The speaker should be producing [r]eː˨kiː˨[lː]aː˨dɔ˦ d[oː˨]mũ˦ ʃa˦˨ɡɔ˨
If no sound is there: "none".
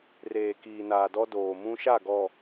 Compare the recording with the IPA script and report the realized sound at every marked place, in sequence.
r, n, oː˨

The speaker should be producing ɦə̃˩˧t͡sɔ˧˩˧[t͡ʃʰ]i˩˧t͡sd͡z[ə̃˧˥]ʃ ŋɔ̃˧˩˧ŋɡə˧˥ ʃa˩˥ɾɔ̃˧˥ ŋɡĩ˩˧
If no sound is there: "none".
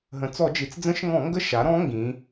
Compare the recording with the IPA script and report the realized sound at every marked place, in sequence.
d͡ʒ, ə̃˧˥

